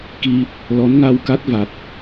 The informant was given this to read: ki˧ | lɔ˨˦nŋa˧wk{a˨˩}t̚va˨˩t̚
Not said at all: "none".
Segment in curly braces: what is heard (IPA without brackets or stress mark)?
a˦˥